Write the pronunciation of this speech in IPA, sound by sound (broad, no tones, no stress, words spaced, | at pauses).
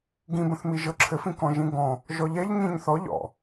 ɡĩbə̃θmi ʒɤǁʰɘfĩ kɔ̃ʒĩɡɔ̃ | ʒɔʎɛʎ ɲĩɲθɔ ʎɔ̰